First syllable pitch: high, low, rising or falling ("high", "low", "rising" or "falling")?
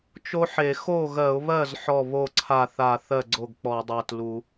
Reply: high